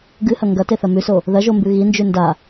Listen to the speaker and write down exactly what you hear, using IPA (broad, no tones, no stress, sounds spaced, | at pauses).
ɡ ɨ h ɐ ŋ ɡ ɐ t e θ ɐ m ʉ s o | ð ɐ ʒ o m b ʉ ɣ i n d͡ʒ ʉ n d a